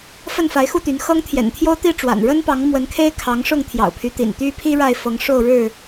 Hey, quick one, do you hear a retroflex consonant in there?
yes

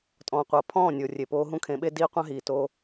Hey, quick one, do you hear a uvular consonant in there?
yes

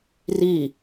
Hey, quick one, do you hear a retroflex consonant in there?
no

